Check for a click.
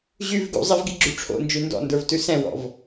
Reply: present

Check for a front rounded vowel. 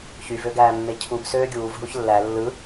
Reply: present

